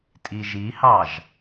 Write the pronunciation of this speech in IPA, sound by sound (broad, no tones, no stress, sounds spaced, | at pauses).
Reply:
tʼ i ʒ i h ɑ ʒ